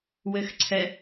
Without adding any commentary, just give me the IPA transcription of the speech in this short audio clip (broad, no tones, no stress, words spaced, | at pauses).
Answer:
wɘxǀʰɛ